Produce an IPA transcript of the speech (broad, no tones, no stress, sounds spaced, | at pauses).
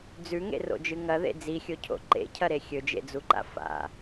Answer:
d͡z ʉ ŋ ḛ r o̰ d͡ʒ ɨ ŋ ɐ ð ḛ d͡z i xʲ o cʰ o̰ ǃ ḛ cʰ ɐ ɾ e xʲ ɵ d͡ʒ ḛ d͡z u ǃ a̰ f a̰